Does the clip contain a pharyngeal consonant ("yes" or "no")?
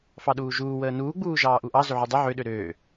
yes